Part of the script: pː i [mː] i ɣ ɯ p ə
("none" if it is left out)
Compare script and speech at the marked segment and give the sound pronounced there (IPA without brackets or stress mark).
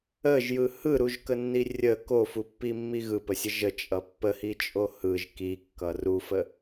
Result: mː